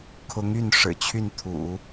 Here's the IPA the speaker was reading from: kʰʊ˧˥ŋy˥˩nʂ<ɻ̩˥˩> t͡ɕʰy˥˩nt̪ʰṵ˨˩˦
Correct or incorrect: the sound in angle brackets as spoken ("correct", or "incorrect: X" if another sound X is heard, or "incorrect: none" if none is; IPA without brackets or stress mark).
incorrect: ɻ̩˨˩